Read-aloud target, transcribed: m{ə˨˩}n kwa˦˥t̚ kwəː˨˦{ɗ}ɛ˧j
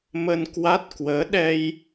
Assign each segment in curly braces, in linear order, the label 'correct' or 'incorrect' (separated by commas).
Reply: incorrect, correct